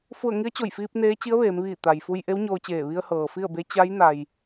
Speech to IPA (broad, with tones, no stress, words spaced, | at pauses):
fu˧˩ə̯ ŋi˧˥ə̯t͡ɕo˧˩jfiː˧p̚ neː˧˥t͡ɕi˧˥ə̯ʋeː˩˧mʋiː˧˩ t̪a˩jfu˧j ʔe˧˥wɲoː˧t͡ɕeː˧˩ ʋi˧ə̯hɤː˩ fi˥˨ə̯be˧˥ t͡ɕa˧˥j na˧j